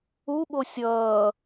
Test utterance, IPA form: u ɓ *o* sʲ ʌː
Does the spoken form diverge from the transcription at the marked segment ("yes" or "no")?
no